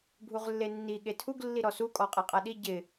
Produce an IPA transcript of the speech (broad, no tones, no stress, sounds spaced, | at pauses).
bʱ u ʁ lː e nː i ɠ e tʰ u ɡ lː i ɾ ɔ s u kʼ ɔ qʼ a qʼ a ɗ i ɟ ɪ